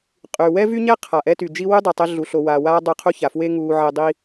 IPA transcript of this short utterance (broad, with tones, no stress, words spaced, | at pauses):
qʼy˩wɛ˥vy˥ɲɛ˥ qʰa˩ ʔɛ˥ty˩ d͡ʒi˥ wy˥dˤe˩tˤe˧ ɮu˩ɬo˩waː˩ waː˥dˤy˧ qʰu˥ça˩fwe˥ ŋuː˧ʕe˧dˤi˥